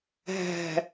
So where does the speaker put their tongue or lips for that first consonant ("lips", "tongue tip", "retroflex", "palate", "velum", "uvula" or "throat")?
throat